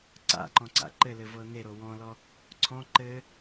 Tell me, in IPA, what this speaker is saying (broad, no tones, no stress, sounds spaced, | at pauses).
ǀ a̰ ǃ ɔ̃ ǀ a̰ ǃ ɘ l ɘ v ɤ n̪ e ɾ o w ɔ̃ l ɔ | ǀʰ ɔ̃ ǃ ɘ